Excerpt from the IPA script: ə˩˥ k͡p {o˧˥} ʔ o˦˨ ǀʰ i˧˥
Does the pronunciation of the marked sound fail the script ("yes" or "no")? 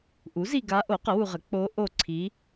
no